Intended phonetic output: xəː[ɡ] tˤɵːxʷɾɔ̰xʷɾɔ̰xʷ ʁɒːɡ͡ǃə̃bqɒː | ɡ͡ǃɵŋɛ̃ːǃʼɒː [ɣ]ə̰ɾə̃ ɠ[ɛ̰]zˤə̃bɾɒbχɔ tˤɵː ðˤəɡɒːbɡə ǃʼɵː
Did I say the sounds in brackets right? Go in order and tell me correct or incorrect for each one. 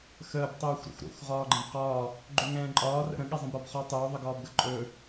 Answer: incorrect, incorrect, incorrect

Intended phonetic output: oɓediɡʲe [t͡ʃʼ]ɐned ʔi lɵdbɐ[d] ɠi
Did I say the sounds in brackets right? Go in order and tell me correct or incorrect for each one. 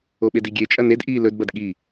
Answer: correct, correct

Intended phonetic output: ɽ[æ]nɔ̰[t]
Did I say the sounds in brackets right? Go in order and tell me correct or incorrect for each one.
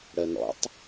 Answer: incorrect, incorrect

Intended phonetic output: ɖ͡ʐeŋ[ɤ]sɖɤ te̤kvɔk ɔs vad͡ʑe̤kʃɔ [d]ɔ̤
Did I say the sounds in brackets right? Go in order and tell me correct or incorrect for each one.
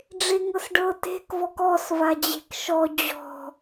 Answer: correct, incorrect

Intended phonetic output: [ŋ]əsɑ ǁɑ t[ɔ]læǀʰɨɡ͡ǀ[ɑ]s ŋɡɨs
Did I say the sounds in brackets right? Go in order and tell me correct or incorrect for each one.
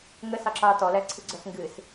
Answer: correct, correct, incorrect

